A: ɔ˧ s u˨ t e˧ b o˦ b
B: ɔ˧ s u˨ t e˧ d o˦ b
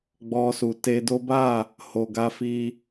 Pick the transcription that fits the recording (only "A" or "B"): B